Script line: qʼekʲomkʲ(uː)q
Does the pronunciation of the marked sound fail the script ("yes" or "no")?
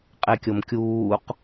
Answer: no